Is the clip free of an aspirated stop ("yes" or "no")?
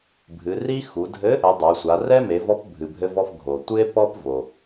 yes